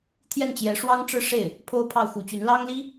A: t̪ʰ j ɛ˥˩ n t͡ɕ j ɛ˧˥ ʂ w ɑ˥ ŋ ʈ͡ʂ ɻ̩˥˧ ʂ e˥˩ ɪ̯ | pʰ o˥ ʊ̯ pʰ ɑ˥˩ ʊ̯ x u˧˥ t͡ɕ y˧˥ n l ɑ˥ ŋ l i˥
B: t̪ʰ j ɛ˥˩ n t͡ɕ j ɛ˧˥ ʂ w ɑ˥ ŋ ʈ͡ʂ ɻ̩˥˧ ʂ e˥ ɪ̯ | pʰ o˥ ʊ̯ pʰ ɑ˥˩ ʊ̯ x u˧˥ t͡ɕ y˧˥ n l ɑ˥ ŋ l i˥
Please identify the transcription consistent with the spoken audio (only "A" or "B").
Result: A